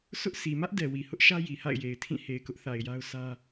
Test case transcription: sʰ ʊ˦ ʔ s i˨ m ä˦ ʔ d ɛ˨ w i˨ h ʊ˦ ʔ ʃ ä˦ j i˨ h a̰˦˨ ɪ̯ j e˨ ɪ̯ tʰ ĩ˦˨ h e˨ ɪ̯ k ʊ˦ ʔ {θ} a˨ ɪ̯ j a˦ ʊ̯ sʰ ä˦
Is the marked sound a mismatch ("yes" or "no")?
no